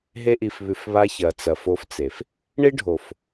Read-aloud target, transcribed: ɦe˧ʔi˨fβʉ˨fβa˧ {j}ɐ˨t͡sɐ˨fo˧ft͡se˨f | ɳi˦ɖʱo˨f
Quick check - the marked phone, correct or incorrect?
incorrect: ç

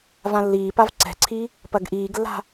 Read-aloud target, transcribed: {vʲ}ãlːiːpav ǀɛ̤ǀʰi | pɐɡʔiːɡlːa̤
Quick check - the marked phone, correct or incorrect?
incorrect: v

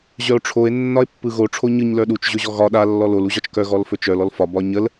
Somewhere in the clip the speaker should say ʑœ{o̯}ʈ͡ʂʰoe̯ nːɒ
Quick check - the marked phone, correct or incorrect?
correct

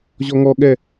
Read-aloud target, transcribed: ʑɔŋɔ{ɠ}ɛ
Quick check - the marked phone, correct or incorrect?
correct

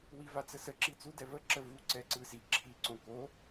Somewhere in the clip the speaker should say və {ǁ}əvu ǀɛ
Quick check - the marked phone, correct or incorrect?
correct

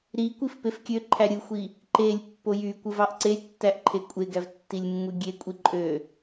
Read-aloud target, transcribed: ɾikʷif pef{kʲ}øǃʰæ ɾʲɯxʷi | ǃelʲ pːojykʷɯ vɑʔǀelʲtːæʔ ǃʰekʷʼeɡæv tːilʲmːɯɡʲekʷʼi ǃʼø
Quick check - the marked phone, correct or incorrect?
correct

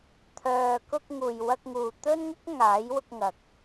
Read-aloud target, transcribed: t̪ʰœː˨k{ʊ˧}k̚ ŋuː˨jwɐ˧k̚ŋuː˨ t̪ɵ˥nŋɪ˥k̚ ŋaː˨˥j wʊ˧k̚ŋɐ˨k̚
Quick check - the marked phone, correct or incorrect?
correct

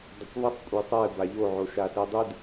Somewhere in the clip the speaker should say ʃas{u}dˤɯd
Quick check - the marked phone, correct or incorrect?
incorrect: ɯ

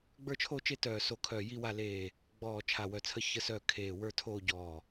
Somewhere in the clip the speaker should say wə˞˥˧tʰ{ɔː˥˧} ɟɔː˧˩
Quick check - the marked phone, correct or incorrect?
incorrect: oː˥˧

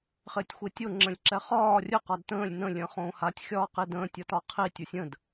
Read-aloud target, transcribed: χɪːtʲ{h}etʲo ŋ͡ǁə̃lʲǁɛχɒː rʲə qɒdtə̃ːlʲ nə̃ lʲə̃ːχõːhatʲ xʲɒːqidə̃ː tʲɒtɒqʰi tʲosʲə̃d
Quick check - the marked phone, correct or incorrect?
incorrect: xʷ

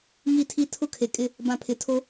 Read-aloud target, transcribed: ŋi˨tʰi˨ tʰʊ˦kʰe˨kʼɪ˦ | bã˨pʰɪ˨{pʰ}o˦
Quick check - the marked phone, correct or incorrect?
incorrect: tʰ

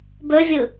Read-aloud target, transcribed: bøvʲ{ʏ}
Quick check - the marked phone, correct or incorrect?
incorrect: ɨ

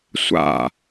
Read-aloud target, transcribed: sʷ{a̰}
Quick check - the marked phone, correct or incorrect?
correct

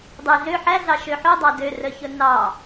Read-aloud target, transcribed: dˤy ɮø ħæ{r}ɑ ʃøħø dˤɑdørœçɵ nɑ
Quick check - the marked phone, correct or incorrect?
incorrect: ɮ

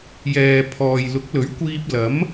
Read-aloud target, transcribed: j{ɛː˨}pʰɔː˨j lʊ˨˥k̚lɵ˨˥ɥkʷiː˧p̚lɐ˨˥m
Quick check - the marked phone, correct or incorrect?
correct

